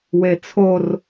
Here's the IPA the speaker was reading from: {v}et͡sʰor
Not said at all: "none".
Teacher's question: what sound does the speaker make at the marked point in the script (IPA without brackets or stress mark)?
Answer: w